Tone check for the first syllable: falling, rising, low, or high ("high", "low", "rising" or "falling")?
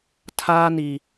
high